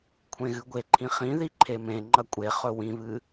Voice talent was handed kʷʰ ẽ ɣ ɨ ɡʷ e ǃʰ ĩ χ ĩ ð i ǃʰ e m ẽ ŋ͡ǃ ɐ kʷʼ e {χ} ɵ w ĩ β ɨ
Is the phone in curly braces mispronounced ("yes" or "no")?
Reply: no